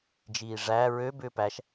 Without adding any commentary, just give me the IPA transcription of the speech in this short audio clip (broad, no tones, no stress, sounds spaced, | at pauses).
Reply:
d͡ʒ iː ʐ æ ɹ ø b ʏː p æ ʃ